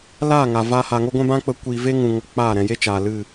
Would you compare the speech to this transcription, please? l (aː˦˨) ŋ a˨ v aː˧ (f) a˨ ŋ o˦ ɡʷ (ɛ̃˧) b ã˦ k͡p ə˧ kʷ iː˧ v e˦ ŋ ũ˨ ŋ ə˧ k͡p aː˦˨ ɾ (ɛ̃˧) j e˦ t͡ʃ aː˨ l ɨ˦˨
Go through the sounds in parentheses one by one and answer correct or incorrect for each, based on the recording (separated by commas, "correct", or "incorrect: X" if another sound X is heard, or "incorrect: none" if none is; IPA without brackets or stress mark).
correct, incorrect: h, incorrect: ɛ̃˦, correct